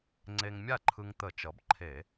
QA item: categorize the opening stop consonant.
click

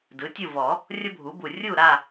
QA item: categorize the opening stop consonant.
plain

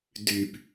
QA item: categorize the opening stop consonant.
plain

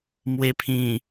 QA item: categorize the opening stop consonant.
aspirated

